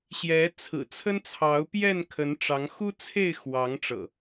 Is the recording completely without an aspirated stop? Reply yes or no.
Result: no